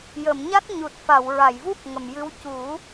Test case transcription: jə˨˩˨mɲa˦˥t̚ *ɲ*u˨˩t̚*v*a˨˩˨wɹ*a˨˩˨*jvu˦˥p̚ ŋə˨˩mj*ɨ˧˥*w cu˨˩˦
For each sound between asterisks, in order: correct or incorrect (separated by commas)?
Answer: correct, incorrect, correct, correct